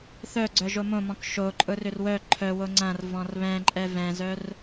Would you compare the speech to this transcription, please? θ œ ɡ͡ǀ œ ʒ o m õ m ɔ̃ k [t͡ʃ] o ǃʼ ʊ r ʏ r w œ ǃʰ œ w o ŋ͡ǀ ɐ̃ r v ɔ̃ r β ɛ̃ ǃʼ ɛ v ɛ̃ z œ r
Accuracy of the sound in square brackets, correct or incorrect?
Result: incorrect